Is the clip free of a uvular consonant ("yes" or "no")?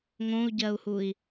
yes